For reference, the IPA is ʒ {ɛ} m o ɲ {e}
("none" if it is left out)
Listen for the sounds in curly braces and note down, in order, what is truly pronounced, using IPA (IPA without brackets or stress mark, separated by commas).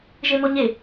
e, e